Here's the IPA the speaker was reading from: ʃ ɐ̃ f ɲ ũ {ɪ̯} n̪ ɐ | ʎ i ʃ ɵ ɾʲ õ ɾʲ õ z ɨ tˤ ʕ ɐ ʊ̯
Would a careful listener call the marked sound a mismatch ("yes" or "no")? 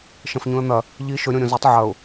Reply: yes